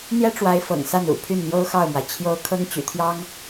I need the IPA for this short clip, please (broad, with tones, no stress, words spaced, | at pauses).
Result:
n̪jɛ˥ʈ͡ʂwa˧˥ɪ̯ fɤ̰˨˩ŋsa˥˩nṵ˨˩ pʰy˥˩nn̪jo˥ʊ̯xɑ˥˩ʊ̯mwa˩ɪ̯ t͡ɕʰjo˧˥ʊ̯ kʰɤ˥ŋt͡ɕy̰˨˩t̪ʰjɑ˥ŋ